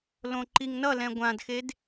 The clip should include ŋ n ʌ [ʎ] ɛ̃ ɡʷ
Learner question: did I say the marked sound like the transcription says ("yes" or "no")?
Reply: no